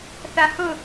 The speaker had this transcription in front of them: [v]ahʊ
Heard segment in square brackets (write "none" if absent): θ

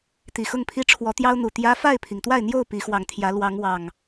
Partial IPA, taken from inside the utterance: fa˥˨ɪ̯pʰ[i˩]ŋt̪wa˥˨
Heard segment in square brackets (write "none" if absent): i˩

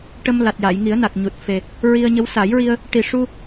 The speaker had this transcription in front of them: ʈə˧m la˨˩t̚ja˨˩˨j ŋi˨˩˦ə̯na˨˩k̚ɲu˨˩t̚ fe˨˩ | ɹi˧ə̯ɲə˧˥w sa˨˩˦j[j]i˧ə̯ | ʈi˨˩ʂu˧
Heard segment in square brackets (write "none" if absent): ɹ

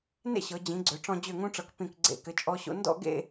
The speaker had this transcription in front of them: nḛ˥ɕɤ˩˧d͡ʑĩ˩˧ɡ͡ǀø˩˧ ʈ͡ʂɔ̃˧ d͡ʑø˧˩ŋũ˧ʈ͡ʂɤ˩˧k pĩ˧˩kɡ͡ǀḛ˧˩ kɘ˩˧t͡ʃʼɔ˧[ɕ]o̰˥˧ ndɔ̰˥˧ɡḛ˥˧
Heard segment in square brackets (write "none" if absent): ɕ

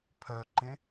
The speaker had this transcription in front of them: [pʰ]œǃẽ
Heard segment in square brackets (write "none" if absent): pʰ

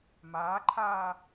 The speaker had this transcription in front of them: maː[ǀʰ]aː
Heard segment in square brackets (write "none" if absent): ǃʰ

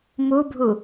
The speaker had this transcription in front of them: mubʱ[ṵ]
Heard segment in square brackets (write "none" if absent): u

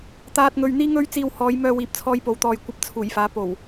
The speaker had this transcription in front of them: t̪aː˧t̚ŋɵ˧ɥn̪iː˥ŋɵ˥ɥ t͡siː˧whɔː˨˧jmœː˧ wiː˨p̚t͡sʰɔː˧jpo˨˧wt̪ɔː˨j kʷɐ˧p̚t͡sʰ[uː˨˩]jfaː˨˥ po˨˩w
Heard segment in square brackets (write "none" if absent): uː˨˩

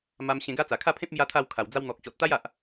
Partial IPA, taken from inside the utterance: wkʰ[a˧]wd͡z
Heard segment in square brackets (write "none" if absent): a˨˩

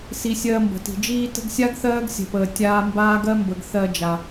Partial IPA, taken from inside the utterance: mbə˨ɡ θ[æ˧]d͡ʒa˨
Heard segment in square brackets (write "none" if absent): ɜ˧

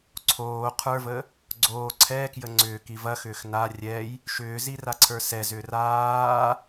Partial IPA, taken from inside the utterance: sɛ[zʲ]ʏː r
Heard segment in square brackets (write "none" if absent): z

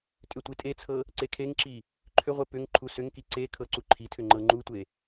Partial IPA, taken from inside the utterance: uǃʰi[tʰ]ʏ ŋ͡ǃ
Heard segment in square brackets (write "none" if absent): tʰ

